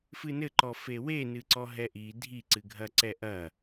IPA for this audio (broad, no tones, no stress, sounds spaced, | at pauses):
f ɨ n ɘ ǃ ɔ f e w e n ɨ ǀ ɔ ɦ ɛ ʔ i dʱ i ǀ ɨ ɡʱ ɐ ǀ ɛ ʔ ɐ